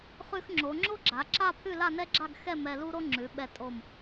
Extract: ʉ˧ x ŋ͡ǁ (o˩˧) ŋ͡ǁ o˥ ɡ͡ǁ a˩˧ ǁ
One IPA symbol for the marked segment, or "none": o˩˧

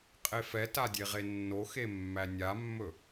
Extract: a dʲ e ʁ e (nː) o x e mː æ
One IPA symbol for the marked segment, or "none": nː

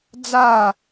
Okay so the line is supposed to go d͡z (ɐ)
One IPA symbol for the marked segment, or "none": a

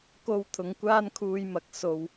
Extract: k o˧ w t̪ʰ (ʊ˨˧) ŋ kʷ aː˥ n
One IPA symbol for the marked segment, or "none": ʊ˨˧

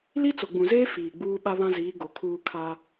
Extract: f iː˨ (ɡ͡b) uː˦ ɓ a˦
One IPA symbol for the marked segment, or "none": ɡ͡b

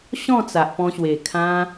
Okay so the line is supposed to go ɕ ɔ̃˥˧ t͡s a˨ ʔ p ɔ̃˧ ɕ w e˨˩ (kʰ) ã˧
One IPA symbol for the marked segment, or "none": kʰ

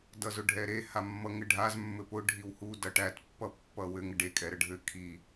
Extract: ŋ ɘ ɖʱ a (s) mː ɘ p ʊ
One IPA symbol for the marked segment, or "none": z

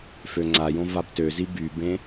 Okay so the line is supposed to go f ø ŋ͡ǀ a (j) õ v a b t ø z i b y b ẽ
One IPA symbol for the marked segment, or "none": j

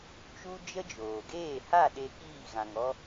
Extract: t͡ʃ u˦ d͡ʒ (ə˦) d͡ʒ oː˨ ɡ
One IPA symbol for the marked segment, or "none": ə˦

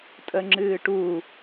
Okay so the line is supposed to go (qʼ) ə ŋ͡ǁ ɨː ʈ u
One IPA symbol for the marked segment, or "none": tʼ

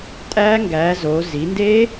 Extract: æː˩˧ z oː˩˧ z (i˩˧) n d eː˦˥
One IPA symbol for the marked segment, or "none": i˩˧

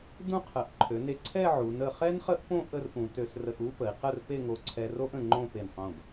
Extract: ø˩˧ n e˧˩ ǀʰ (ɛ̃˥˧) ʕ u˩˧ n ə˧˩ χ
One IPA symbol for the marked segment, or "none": ɛ˥˧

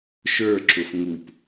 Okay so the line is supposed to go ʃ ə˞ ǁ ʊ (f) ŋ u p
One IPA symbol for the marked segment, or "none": f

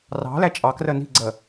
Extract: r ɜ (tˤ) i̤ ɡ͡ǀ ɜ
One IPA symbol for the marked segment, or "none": n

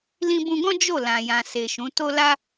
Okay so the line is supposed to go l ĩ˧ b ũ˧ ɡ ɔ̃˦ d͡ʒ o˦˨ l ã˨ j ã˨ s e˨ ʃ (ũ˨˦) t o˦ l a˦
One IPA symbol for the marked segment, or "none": ũ˨˦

